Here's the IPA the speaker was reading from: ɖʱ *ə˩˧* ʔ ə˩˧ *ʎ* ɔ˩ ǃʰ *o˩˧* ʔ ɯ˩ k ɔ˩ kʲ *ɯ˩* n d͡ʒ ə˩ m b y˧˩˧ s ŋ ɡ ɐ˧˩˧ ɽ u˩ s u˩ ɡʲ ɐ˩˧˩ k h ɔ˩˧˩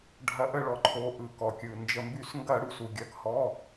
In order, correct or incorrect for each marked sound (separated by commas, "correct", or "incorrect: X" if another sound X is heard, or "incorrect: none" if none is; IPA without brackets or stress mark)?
incorrect: ɐ˩˧, incorrect: ɭ, correct, correct